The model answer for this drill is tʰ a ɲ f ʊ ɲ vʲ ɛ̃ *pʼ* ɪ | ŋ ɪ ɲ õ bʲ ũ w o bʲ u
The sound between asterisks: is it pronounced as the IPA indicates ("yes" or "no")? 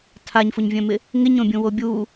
no